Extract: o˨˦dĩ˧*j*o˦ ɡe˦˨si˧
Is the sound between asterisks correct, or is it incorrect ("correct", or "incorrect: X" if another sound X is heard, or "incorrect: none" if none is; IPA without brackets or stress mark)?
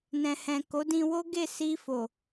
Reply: incorrect: w